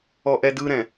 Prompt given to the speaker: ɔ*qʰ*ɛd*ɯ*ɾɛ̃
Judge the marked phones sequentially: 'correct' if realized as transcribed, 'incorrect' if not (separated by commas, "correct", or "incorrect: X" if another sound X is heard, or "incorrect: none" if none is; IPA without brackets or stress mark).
incorrect: ʔ, correct